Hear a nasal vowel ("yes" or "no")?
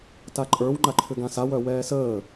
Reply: yes